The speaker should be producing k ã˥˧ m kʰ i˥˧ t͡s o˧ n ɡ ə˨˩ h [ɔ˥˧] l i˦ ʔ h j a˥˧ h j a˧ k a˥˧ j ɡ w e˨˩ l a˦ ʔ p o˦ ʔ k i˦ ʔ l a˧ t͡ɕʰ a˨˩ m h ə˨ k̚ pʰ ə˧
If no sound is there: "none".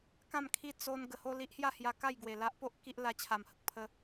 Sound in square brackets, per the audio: o˥˧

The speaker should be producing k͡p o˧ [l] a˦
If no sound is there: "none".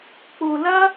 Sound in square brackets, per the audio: l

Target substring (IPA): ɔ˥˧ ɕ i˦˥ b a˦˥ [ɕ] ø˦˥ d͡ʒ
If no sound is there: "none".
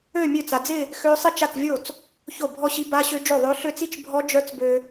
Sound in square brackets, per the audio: ɕ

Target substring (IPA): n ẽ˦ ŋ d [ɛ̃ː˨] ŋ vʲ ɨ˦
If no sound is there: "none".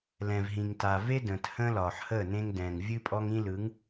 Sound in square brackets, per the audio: ɛ̃ː˨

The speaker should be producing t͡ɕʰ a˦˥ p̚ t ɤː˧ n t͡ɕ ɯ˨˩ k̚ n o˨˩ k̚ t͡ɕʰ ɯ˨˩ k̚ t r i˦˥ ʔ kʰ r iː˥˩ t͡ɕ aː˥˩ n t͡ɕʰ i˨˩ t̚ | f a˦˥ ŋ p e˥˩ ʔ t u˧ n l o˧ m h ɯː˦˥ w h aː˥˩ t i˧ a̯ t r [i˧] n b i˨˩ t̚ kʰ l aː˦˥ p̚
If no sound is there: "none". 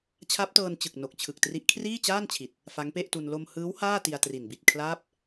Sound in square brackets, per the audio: i˨˩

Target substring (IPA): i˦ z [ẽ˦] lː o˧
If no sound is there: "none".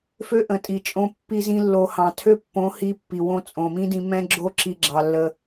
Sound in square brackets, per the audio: ĩ˦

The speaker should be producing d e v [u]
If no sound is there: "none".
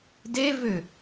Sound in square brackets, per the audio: ʏ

